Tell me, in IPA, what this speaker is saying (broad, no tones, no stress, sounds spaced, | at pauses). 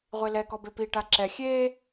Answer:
ʁʷ e l ɛ k ɔ b e p i ʈ a ǁ ɛ xʲ eː